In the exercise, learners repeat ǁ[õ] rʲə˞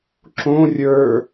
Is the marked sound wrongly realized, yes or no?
no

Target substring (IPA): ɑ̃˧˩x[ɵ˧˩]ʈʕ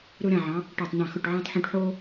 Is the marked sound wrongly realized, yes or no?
no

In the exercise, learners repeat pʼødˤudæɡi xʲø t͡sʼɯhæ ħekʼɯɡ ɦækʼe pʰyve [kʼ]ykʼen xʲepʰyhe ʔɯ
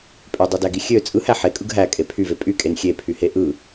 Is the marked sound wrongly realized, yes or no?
yes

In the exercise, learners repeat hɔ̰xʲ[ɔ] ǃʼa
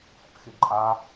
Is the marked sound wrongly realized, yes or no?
yes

